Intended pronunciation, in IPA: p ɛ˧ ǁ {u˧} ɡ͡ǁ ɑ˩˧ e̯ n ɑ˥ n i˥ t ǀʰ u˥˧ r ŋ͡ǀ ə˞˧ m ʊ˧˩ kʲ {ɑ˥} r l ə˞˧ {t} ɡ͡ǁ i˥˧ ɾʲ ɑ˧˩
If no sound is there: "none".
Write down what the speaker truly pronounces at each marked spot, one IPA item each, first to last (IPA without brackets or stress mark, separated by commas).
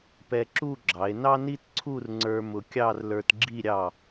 u˥˧, ɑ˥˧, t